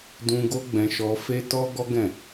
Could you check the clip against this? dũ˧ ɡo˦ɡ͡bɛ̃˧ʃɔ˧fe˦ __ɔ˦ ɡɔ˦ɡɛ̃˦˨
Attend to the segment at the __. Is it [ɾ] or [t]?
t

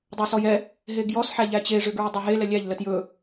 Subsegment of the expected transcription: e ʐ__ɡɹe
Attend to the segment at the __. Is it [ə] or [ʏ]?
ʏ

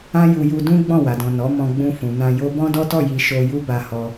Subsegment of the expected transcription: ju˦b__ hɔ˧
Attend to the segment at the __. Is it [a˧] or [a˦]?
a˧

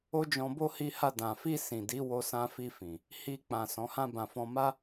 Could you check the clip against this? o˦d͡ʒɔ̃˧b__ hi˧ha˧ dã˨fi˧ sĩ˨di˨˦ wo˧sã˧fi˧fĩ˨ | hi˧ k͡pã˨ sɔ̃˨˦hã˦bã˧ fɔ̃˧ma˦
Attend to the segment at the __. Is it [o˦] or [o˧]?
o˦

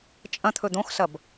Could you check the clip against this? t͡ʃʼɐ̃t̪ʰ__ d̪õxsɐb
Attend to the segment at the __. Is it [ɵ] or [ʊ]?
ɵ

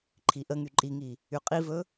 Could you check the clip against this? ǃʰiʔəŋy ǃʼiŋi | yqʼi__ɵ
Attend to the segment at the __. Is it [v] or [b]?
v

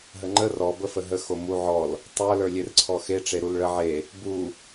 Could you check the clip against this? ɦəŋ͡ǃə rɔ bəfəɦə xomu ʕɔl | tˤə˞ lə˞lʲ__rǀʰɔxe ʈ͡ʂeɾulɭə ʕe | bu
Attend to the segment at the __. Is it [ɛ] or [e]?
e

